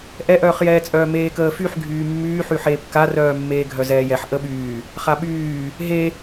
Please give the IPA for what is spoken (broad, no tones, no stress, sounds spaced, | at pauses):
ʔ ɛ ʔ œː χ j ɛː t͡sʼ œː m eː k əː f y ħ ɡʱ yː mː yː ħ y ħ eː p k a r œː mː eː ɡʱ œ z ɛː j ɛ ħ ʔ ə ɓ yː | χ a ɓ yː | ɦ e